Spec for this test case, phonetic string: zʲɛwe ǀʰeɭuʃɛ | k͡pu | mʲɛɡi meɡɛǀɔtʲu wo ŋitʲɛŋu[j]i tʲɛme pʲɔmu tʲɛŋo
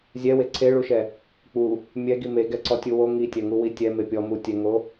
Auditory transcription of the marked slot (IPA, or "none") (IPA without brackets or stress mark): w